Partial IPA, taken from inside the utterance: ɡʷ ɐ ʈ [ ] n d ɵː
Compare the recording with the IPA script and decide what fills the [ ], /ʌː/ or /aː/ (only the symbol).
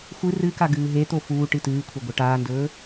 aː